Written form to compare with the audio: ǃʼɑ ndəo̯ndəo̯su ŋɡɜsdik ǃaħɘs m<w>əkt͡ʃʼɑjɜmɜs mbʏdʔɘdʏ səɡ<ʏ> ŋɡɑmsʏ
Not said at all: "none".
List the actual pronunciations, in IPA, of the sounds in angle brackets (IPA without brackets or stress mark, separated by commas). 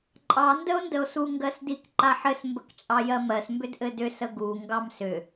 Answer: b, u